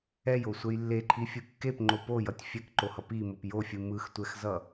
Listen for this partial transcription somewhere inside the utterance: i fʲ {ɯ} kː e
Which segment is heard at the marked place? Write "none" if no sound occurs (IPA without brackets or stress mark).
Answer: ɯ